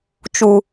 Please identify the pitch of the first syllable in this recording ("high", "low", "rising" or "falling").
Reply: low